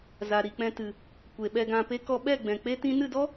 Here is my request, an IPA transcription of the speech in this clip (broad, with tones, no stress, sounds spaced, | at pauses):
z a˨ ɾ i˨ k͡p ɛ̃˧ t ɨ˨ | kʷ e˨ ɓ ɛ˧ ɡ ã˧ p e˦ k ɔ˧ ɓ ɛ˦˨ ɡ͡b ɛ̃˨ k͡p e˦ t ĩ˦ n ɨ˦˨ d ɔ˦